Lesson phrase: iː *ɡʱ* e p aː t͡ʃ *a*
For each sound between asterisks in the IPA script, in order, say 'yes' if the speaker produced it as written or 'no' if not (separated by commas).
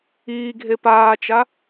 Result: yes, yes